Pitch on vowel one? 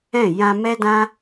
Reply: falling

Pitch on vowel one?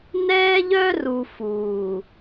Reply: high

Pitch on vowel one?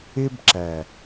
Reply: high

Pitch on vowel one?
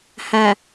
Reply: low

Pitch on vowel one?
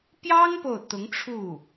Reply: high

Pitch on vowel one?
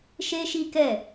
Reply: high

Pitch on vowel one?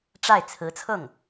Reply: falling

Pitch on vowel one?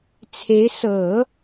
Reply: rising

